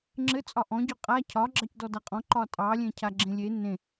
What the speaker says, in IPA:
ŋ͡ǁ ɘ t͡sʼ ɒ ʔ ɔ̃ ɟ ɔ qʼ a cʰ ɒ ɡ͡ǁ ɑ c d ɔ d a qʼ ɔ̃ ǃ ɒ tʼ ɑ lʲ ẽ cʰ a ɡ͡ǁ ẽ lʲ e n ẽ

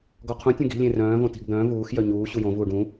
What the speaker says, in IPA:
ɡ ɔ qʰ ũ tʲ ũ ɡ i̤ lʲ ẽ r œ̃ː v õ t i̤ ɡ d̪ œ̃ː v uː x j œ ɲ uː ɕ u j õ v uː ɖ ũ

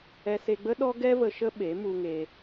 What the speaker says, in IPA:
ɛ˧ s e˧ ɡ͡b ə˦ ɗ ɔ˦ ɡ ɛ˦ v ə˧ ʃ ə˦ ɓ e˨˦ m u˧ ŋ e˧

